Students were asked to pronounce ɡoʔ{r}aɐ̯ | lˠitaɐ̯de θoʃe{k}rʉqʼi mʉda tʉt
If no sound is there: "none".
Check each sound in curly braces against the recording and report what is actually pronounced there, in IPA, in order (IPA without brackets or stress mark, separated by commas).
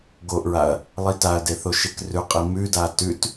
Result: ɹ, k